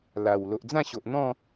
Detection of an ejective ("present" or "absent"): absent